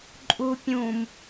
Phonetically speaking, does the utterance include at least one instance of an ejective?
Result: yes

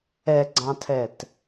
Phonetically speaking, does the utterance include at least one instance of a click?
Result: yes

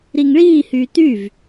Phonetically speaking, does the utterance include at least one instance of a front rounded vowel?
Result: yes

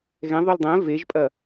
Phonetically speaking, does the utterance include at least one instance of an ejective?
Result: yes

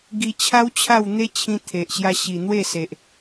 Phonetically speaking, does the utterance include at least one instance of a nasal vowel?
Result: yes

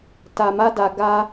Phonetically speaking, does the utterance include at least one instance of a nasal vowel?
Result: no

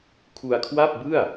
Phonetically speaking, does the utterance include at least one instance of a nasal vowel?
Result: no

